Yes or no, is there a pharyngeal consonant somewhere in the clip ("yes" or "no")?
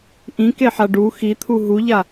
yes